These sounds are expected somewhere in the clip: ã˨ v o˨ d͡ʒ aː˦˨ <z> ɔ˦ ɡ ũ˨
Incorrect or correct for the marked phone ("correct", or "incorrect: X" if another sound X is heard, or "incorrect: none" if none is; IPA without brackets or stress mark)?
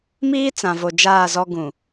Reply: correct